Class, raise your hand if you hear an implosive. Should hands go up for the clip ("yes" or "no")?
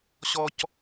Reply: no